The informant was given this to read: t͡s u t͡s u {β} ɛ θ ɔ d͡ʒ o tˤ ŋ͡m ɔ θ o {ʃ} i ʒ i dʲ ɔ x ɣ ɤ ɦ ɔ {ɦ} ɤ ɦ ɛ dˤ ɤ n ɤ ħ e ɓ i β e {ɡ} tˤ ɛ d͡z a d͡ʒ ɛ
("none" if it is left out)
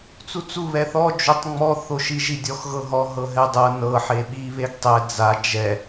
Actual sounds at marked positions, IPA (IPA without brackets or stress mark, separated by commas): β, ʃ, ɦ, ɡ